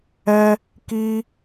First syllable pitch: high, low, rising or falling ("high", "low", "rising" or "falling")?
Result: high